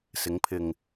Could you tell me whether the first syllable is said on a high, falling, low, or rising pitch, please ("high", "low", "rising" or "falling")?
rising